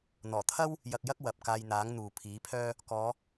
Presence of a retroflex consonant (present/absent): absent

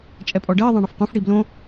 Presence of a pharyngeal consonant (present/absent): absent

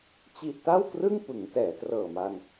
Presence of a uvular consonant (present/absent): absent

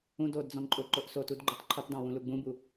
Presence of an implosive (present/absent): absent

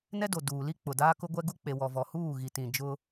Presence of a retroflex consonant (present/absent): absent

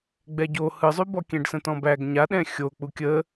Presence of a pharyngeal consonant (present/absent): absent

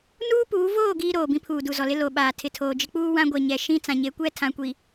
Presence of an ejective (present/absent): absent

